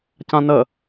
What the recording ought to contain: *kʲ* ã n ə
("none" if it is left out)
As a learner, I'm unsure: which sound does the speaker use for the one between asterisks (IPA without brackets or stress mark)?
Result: c